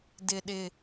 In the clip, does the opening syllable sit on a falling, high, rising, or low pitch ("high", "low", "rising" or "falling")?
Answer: low